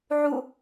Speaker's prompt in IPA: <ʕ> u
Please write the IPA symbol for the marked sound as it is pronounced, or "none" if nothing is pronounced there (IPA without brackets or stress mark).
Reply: ʕ